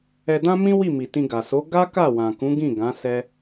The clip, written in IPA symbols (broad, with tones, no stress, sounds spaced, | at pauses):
ɛ˧ d ã˦ m ĩ˦ w i˦˨ m i˨ t ĩ˧ ɡ a˨ s o˨˦ ɡ a˦ k a˦˨ w ã˨ k ũ˨˦ ɡ ĩ˦˨ ɡ ã˨˦ s ɛ˦